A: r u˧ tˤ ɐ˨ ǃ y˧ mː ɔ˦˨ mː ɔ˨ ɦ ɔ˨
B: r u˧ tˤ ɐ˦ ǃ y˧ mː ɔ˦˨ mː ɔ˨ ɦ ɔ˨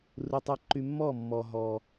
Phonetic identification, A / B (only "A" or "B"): B